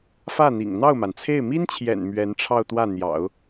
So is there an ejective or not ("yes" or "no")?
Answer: no